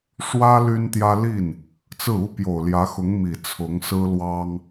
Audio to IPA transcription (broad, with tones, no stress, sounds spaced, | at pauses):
ʂ w ä˥ l y˥ n t̪ j ä˥ l i˥˩ n | t͡s ɹ̩˥˩ u˥ p j o˨˩ ʊ̯ l j ä˧˥ x ʊ˧˥ ŋ m i˨˩ t͡sʰ ʊ˧˥ ŋ s ɹ̩˥ l w ɑ˥ ŋ